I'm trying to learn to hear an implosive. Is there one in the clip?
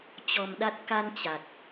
yes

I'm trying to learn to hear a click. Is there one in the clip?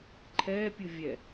yes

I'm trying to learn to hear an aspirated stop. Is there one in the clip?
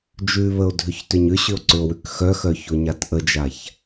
no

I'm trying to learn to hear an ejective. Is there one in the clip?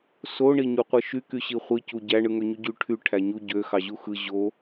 no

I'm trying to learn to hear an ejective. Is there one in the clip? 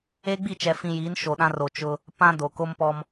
no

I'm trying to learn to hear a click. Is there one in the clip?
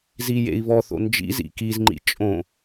yes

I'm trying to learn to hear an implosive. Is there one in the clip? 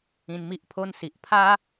no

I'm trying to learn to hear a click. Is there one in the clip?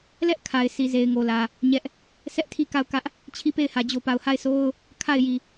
no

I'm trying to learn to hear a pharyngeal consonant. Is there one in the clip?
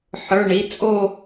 yes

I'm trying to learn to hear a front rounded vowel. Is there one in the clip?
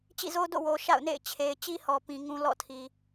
no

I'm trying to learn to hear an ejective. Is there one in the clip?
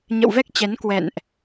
no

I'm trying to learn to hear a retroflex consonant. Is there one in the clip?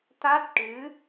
yes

